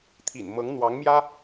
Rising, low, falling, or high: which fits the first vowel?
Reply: low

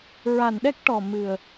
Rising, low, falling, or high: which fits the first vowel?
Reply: low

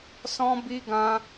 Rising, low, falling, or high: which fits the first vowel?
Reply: high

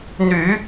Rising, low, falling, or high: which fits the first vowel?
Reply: low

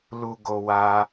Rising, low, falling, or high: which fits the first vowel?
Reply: high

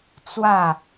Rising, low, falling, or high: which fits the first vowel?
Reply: falling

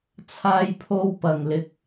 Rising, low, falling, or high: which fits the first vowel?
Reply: high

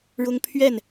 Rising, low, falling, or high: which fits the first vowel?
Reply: high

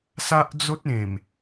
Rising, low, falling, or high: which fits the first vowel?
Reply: high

